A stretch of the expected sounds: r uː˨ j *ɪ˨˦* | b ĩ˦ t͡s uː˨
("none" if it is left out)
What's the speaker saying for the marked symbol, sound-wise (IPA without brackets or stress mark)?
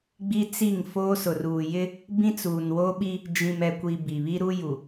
ɪ˦